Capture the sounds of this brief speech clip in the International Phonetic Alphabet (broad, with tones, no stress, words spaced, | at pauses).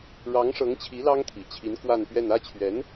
ɻɑ˧˥ŋʂɤ˧˥ŋt͡ɕʰi˧˥ lɑ˥ŋt̪ʰi˨˩t͡ɕʰi˧˥n kwa˥˧npɥɛ˥˧n ä˥˩t͡ɕʰɥɛ˧˥n